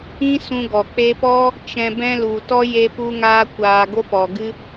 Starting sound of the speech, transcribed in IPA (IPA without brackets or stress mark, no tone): ĩ